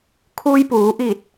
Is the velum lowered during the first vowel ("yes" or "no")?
no